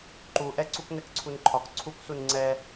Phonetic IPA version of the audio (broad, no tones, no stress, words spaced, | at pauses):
ǃuʔɛ ǀuknɛkǀʰunǃʰɒk ǀʰuksun ŋ͡ǀɛ